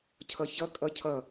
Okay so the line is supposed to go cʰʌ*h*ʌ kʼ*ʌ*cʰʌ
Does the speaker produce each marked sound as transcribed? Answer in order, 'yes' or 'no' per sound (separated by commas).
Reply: no, yes